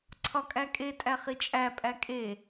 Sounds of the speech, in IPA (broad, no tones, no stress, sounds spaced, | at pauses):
ǀʰ ɒ kʼ æ kʼ e tʼ æ χ i t͡ʃʼ æ pʼ æ kʼ e